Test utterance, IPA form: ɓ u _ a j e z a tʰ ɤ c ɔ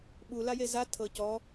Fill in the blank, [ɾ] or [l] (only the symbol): l